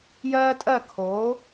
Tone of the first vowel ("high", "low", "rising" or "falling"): high